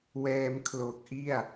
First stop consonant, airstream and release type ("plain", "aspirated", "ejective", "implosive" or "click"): aspirated